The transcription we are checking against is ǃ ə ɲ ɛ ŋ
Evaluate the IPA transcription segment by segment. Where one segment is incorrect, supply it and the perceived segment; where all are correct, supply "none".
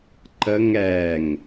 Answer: ɲ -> ŋ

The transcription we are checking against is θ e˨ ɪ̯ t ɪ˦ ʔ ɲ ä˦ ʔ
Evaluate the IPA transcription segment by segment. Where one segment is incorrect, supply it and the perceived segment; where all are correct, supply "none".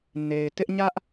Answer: θ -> n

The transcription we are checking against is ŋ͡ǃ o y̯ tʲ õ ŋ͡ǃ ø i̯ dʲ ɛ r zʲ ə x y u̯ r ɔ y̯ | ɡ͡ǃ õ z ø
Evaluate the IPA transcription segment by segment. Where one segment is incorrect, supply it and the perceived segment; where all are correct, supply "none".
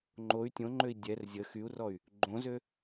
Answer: none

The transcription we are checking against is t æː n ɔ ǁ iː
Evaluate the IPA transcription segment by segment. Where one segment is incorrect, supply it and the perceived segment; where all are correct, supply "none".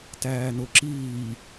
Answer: ɔ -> o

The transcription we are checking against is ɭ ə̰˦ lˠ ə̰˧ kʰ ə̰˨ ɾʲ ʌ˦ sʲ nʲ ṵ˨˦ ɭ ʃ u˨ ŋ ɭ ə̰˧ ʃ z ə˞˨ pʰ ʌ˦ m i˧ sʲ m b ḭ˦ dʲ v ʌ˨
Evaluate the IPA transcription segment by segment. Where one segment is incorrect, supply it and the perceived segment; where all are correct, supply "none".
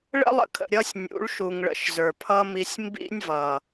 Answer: dʲ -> nʲ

